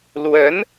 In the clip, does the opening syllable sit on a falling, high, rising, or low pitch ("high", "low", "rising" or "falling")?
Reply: rising